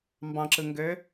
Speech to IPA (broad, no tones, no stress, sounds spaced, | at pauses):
m b ɑ̃ ǁ ɯ ŋ ɡ ø